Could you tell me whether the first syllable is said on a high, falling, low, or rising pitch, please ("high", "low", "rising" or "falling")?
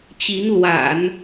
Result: rising